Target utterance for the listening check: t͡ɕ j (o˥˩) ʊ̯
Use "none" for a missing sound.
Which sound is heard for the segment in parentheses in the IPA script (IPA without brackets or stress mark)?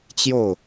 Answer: o˥˩